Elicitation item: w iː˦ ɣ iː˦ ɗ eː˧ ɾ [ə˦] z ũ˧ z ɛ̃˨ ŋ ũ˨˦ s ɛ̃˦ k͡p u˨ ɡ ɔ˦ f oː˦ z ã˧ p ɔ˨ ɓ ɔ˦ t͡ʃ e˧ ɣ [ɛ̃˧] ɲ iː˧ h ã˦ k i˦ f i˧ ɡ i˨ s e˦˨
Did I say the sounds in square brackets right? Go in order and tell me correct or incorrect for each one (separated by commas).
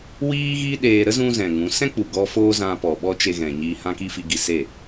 correct, incorrect